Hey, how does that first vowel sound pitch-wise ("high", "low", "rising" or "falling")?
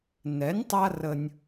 rising